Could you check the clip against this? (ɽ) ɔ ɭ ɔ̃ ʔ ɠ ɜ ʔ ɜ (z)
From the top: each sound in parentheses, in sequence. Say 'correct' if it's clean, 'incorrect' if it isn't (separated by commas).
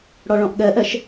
correct, incorrect